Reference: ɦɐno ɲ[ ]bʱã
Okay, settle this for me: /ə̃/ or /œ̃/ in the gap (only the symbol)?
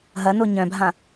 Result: œ̃